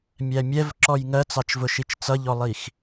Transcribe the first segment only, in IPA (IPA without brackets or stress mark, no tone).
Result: mʲ